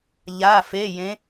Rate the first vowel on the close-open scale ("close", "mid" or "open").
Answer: open